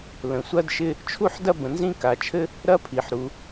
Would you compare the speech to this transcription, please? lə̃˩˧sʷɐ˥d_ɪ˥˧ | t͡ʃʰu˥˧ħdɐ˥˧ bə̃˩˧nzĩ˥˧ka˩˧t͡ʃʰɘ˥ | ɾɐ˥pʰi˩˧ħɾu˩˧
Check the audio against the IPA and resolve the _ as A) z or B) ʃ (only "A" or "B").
B